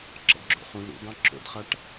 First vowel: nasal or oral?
oral